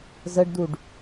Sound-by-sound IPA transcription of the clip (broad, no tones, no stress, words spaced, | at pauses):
zəɖduɖ